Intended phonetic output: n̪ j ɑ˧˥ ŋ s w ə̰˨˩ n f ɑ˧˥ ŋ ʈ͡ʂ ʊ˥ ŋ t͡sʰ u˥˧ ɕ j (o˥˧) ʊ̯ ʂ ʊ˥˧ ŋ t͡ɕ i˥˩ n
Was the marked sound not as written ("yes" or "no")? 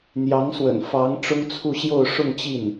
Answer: no